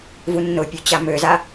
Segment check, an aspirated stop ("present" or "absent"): absent